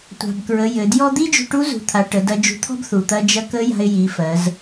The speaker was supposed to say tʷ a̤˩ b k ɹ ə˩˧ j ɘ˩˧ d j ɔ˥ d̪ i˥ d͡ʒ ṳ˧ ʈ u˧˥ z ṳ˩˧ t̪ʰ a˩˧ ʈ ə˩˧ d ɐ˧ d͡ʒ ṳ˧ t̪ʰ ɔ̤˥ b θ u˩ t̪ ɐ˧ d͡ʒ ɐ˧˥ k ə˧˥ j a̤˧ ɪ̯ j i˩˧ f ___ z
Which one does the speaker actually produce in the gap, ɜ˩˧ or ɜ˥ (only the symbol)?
ɜ˩˧